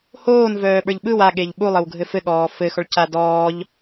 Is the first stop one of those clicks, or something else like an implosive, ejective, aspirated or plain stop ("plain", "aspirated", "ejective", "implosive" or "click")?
implosive